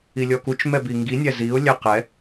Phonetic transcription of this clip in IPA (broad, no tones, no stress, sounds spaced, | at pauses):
i lʲ ɔ k u t͡ʃ m ɛ b i ŋ ɡ i nʲ æ z i ʊ̯ lʲ æ q ɛ